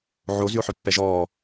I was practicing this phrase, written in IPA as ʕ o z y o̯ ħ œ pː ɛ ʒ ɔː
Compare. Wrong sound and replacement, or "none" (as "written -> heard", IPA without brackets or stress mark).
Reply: none